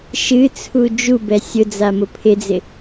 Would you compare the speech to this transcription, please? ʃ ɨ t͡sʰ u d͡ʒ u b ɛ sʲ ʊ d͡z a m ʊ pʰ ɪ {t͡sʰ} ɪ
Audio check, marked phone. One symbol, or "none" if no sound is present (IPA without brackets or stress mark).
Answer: d͡z